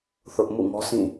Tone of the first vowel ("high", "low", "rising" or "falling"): high